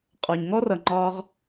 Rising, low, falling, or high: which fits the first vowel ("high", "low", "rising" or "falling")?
low